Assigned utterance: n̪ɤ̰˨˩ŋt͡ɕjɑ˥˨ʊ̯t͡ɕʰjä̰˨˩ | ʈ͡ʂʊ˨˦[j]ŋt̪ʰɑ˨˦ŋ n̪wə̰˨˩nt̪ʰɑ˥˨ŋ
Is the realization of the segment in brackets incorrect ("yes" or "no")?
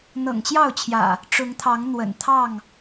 yes